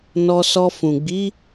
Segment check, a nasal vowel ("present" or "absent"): present